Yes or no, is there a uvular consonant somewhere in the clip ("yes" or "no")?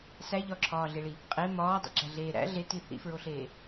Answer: yes